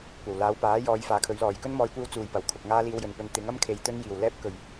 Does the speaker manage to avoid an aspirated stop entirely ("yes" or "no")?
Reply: no